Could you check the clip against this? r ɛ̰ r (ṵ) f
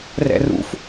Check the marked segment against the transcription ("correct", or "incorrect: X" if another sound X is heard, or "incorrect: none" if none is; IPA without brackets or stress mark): correct